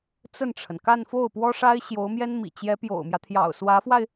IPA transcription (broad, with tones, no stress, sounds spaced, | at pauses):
t͡s ə˥˩ n ʈ͡ʂʰ ə˩ n k a˥˧ n f o˥˩ ʊ̯ p w ɔ˥ ʂ a˥ ɪ̯ ɕ j o˧˥ ʊ̯ m j ɛ˥ n m ḭ˨˩ t͡ɕ j ɛ˧˥ p j o̰˨˩ ʊ̯ m j ä˦ t̪ʰ j ɑ̰˨˩ ʊ̯ s w ä˧˥ f w a˧ ɪ̯